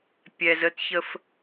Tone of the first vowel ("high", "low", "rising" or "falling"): low